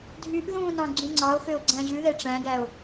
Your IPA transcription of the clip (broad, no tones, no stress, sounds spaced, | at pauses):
dʱ y ʔ ð ũ n ɑ̃ ɡ͡ǀ ũ ŋ͡ǀ ɑ o̯ x ø o̯ ɡ͡ǀ æ̃ ʑ ʉ ð ɛ ʈ͡ʂ æ̃ ɡ æ o̯